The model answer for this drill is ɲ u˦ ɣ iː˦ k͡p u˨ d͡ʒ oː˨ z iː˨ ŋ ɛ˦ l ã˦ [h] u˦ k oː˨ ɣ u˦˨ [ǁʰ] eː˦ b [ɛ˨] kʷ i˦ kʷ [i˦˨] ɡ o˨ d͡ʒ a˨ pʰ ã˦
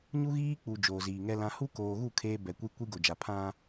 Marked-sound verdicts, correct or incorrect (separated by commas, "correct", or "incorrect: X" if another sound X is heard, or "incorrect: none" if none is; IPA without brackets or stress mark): correct, incorrect: kʰ, correct, incorrect: i˦